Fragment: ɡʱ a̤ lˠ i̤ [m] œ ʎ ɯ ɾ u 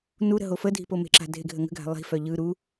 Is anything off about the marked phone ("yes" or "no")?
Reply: yes